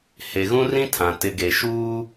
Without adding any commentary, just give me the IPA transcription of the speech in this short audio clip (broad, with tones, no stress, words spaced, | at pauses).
he˨ɣũ˦rĩ˦tʰã˨ tɪ˨ɡe˨ʃuː˦